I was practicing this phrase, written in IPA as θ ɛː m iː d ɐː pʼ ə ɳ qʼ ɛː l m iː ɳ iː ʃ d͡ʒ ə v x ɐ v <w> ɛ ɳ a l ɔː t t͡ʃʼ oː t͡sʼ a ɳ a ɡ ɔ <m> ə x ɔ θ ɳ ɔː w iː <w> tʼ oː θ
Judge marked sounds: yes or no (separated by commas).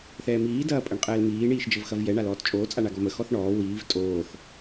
no, yes, no